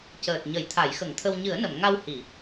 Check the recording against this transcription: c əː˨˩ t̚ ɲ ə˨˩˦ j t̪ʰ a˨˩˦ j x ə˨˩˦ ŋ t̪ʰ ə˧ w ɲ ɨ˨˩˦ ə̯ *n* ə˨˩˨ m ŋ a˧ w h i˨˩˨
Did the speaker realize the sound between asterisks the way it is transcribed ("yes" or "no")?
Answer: yes